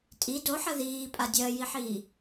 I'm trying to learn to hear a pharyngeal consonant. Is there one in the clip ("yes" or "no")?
yes